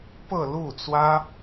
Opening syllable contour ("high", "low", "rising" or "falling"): falling